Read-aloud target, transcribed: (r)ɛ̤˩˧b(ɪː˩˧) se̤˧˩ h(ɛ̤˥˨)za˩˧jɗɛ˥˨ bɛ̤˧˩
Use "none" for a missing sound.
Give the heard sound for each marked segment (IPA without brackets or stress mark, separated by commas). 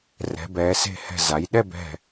r, ɛː˩˧, ɛ̤˧˩